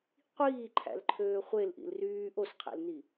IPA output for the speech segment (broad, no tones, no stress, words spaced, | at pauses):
qʷiːǃʰæ̰lǃʰøː χʷelʔḭl ryː ʔosqʰæ̰lni